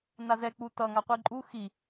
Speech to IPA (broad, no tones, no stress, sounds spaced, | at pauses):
n a z ɛ k͡p u t ʌ ŋ a qʷ i ǃʼ u x i